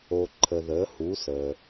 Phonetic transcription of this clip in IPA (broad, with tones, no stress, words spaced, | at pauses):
o˩ǃʰə˩ ðəː˩˧hu˩˧səː˩